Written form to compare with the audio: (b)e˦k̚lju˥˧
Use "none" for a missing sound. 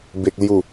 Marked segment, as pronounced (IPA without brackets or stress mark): b